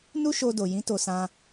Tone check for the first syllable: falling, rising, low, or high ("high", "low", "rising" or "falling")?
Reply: high